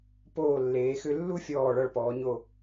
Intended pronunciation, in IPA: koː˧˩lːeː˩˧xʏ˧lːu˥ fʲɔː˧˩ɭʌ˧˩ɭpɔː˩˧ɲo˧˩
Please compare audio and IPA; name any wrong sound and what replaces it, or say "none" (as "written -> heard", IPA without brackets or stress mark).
k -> p